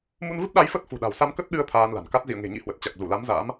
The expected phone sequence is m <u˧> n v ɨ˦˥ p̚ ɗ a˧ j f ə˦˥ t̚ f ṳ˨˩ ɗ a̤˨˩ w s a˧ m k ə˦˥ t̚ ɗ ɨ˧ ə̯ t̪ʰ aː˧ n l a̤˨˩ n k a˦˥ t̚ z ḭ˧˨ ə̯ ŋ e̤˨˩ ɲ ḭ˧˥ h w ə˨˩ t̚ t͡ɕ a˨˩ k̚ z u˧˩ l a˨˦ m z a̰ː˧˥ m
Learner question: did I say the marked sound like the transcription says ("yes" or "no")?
yes